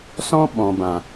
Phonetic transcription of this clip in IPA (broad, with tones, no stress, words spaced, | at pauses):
sɔ̃˦ ɓɔ̃˨bã˨